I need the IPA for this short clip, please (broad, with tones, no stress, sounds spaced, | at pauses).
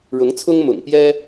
ɻ ʊ˧˥ ŋ t͡sʰ ʊ˥ ŋ m ʊ̰˨˩ ŋ p j ɛ˥